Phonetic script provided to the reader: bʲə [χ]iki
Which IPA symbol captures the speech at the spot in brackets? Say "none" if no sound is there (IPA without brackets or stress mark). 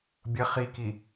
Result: χ